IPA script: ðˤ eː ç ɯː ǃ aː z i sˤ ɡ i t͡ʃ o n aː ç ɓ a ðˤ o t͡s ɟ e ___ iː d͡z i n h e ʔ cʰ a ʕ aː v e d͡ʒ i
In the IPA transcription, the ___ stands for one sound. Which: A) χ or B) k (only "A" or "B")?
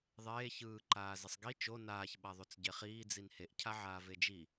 A